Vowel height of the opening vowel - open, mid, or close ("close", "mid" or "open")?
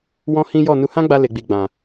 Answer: mid